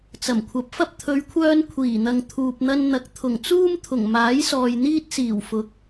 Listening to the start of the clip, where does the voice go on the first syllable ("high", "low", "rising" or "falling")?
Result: low